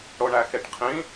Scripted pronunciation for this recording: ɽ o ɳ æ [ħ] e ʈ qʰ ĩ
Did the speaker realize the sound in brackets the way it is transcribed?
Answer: no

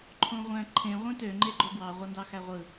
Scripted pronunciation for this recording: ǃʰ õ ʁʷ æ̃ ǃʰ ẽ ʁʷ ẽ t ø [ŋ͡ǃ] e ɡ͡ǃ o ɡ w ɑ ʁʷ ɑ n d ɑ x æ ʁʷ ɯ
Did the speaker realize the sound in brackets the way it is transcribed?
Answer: yes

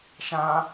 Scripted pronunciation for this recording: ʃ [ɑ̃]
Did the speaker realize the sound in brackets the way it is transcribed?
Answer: no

